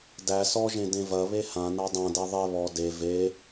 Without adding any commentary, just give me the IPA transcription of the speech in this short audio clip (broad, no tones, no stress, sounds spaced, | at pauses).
d æ s ɔ ʒ ẽ d ẽ v ɐ β e h ã n a dˤ ã d ɛ ðˤ e β ɔ d e v e